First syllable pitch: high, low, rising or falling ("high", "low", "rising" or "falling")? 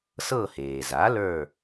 falling